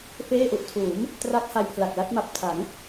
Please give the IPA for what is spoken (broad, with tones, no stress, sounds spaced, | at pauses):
f eː˥˩ ʔ u˨˩ ʔ tʰ uː˩˦ m | t r a˦˥ k̚ h a˧ j pʰ l a˨˩ k̚ l a˦˥ t̚ m a˨˩ p̚ tʰ a˩˦ ŋ